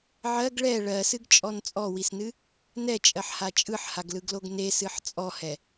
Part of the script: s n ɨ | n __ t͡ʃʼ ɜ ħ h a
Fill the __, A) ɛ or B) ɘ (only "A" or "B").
A